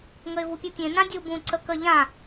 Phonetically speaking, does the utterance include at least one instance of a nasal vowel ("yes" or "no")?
yes